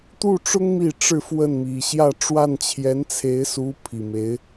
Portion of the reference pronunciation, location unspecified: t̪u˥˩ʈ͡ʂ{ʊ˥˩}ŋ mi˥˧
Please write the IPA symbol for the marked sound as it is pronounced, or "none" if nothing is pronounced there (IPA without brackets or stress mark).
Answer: ʊ˥